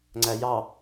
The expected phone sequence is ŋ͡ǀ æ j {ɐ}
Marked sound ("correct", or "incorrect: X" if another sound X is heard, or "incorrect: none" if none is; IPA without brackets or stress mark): incorrect: ɑ